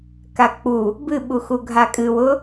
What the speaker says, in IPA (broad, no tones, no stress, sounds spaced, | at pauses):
k a k͡p u | b ɨ ɓ u x u ɡʱ a kʼ ɨ w ʊ